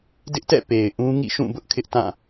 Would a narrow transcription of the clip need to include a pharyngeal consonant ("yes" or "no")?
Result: no